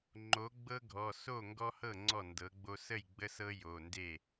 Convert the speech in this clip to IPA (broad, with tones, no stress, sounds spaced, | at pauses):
ŋ͡ǃ o˩˥ ɡ͡b ɤ˦ ɡʱ ɔ˩˧˩ s o˥˩ ŋ ɡ ɔ˦ h ɤ˥˩ ŋ͡ǀ ɔ˥˩ n d ɤ˩˥ ɡ͡b o˦ s ə˥˩ j ɡ͡b ə˦ s ɤ˦ j o˩˧˩ n d e˥˩